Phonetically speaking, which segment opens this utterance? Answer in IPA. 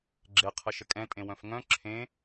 ɡ͡ǁ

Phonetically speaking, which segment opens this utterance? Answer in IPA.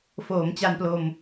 f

